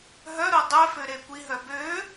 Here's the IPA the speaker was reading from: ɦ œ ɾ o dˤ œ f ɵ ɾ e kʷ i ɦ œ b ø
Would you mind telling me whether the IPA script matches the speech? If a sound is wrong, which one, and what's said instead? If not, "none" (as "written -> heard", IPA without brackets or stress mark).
ɵ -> ø